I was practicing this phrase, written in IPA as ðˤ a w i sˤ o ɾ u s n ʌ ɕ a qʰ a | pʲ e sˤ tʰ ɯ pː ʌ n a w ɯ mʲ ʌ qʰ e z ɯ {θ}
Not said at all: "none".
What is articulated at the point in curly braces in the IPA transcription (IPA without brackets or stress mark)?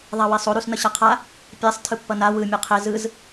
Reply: z